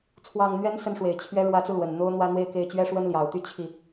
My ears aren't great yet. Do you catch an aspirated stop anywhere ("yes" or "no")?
yes